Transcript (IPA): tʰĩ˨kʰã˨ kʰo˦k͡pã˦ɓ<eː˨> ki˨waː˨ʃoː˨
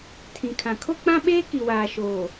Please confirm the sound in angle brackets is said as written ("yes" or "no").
no